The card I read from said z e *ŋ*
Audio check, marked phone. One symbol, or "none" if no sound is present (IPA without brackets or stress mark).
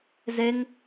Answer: ŋ